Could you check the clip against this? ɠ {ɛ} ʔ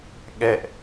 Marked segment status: correct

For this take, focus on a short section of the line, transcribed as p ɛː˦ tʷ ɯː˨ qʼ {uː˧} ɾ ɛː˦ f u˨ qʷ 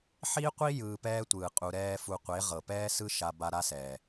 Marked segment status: incorrect: u˧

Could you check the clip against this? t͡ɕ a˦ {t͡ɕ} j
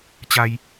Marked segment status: incorrect: none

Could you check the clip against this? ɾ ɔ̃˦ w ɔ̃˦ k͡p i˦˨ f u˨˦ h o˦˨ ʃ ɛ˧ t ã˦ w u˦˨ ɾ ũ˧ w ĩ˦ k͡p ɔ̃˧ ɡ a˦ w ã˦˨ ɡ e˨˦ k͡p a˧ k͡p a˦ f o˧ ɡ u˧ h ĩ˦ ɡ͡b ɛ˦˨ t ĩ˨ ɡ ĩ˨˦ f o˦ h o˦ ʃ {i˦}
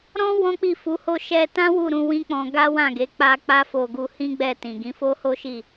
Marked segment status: incorrect: i˦˨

